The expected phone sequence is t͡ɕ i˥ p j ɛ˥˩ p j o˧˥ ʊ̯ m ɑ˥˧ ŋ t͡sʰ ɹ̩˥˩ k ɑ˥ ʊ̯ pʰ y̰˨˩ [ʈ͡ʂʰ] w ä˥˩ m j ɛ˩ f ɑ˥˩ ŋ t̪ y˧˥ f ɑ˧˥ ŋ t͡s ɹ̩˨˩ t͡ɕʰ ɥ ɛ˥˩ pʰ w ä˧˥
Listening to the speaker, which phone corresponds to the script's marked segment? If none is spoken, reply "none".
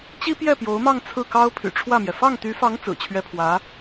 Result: ʈ͡ʂʰ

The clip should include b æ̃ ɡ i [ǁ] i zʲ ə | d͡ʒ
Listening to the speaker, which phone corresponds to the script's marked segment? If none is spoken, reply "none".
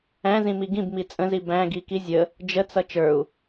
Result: k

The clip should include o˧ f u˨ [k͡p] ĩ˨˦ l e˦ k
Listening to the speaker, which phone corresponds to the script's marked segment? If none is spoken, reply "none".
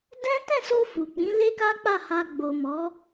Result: k͡p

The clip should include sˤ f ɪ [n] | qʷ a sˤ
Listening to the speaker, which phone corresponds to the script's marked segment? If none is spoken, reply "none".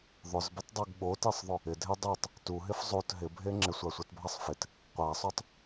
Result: t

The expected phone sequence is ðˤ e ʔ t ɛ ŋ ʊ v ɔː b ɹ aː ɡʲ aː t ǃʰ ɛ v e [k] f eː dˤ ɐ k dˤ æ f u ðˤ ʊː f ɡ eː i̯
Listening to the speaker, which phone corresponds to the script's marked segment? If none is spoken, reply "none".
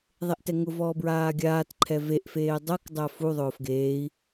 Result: ʔ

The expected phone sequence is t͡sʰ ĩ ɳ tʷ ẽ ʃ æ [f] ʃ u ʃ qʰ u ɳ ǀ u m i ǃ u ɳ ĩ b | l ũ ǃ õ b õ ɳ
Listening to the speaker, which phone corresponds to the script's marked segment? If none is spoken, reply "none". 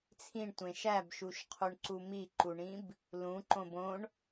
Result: b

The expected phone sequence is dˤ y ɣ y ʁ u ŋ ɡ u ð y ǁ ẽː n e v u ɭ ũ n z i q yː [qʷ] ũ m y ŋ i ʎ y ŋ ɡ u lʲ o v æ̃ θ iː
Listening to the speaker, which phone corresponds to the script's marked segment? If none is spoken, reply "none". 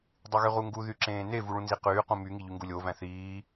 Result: q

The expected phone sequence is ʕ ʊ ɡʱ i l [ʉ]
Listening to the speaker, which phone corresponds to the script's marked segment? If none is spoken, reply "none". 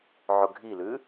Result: ʉ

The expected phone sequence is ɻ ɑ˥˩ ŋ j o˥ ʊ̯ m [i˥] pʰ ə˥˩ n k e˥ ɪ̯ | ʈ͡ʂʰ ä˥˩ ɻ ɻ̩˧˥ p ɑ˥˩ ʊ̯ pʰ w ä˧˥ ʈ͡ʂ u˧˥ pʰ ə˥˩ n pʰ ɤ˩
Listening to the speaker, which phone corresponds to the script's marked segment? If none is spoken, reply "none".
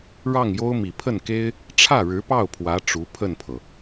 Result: i˨˩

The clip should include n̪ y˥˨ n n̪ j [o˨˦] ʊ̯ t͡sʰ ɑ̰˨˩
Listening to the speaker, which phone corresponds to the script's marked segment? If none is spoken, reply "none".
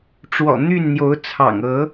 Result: o˨˦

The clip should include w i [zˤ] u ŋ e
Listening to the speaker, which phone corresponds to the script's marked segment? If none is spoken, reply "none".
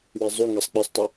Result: zˤ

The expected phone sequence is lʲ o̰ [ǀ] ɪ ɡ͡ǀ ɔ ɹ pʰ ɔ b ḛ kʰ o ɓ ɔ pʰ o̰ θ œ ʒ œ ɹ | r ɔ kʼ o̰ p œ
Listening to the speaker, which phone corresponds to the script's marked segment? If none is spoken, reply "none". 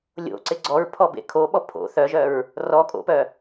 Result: ǀ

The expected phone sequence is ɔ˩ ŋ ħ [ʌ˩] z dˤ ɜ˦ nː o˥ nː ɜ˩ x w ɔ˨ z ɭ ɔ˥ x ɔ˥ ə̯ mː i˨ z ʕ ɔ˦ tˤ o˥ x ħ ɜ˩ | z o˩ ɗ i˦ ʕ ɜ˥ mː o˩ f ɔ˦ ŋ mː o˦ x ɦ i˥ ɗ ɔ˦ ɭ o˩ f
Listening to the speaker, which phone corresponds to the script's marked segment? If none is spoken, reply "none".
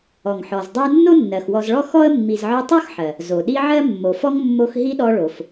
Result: ɔ˩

